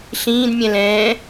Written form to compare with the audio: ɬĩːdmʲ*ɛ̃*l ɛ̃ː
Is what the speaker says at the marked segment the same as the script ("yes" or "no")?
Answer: yes